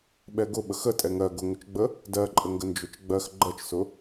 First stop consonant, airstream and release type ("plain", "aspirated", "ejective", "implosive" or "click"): implosive